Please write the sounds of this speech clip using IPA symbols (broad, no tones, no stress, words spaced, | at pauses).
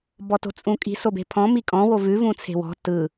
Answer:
bɔto̤t͡sʼũkʼi̤ sobe̤pʰɔ̃ mikʼɔ̃ wovʉ vũt͡sʰe̤wɔ̤ tɯ